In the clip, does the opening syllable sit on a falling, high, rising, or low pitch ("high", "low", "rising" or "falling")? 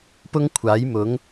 high